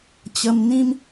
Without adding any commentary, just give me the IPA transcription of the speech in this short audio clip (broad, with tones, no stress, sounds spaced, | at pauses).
t͡ɕ ə˧ m n̪ ĩ˦ m